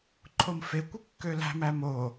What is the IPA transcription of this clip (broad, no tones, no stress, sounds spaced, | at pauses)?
ǃʰ o m f e kʷ ɯ kː ø l æ̤ m æ m o